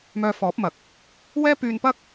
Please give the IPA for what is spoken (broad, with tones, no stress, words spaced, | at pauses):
mœː˧fɔː˨˥p̚mɐ˨˥k̚ | wɛː˥pyː˧npɐ˥k̚